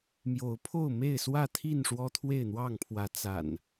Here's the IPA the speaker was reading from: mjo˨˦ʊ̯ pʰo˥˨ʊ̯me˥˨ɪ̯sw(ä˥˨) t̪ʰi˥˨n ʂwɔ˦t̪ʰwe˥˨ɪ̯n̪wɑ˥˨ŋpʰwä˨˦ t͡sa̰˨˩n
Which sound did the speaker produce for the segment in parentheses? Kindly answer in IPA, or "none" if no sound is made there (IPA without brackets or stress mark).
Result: ä˥˨